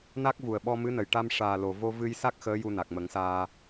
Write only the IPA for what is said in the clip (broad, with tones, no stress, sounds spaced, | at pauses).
n a˦˥ k̚ v u˨˩ ə̯ ɓ ɔ˧ m ɨ˧˥ n ə˨˩ j ʈ a˧ m ʂ aː˨˩ l o˨˩ v o˧ v ɨ˧ j s a˦˥ k̚ x əː˧˥ j u˧ n a˨˩ k̚ m ə˨˩˦ ŋ s aː˧